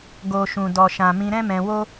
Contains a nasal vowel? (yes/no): yes